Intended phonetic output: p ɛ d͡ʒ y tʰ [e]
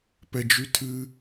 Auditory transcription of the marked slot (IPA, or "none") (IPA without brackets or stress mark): ɨ